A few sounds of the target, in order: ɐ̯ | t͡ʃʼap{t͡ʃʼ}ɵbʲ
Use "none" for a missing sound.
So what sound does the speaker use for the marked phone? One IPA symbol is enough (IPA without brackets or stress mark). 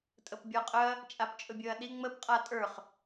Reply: t͡ʃʼ